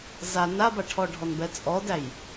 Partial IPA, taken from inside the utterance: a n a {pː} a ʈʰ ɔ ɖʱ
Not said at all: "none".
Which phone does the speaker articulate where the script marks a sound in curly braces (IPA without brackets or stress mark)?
b